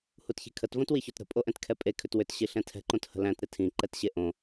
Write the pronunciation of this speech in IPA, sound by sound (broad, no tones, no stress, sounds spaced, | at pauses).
h u t ç i̤ kʰ ə t v õ t w i ç o t ɾ ə̤ pʼ o ʔ ɛ̃ t kʰ ɛ pʼ e kʰ ʏ t w ʏ t ɕ i ɬ ɛ̃ tʰ ɛ̤ ǃ õ t h ə̤ l æ̃ t ɾ ɪ tʰ ĩ ǃ ɛ t ɕ e ʔ õ